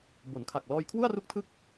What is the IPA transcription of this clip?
b o˩˦ n kʰ a˨˩ k̚ l ɔː˧ j kʰ w u˥˩ a̯ r u˦˥ k̚ tʰ ɯ˦˥ k̚

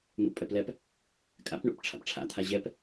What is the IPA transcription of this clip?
n̪ ṵ pʼ ɛ p l ɛ p | kʼ a̰ p ɳ ṵ p ʈ͡ʂʰ a̰ p ʈ͡ʂʰ a̰ t̪ʰ a ʑ ɛ p

